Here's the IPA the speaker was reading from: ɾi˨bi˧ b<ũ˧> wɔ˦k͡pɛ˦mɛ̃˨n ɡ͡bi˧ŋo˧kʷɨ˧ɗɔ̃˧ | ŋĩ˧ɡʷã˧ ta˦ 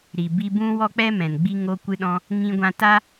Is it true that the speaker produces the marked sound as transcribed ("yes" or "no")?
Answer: yes